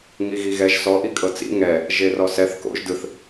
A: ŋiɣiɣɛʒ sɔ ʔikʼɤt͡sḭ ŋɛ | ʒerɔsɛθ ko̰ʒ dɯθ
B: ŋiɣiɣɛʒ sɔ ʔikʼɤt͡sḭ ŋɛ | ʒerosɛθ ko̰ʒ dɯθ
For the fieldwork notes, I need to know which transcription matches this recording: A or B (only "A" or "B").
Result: A